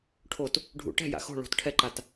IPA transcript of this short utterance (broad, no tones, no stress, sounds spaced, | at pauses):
ʈʰ o t | ɖʱ ṵ ʈ ɛ̤ j a̰ x o̤ ɭ o̤ t ʈʰ ɛ ǃ a t